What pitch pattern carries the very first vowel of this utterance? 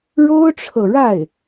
high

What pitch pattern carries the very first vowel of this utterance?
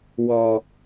low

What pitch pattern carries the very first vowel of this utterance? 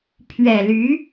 low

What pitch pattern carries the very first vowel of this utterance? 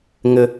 high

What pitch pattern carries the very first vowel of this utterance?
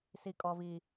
low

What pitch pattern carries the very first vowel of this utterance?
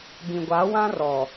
low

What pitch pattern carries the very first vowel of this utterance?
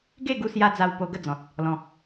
falling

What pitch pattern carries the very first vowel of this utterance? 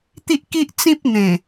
high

